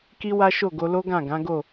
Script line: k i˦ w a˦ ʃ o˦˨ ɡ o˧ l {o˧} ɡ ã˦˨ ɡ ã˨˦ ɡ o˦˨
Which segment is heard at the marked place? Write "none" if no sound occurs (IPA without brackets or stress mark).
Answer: o˦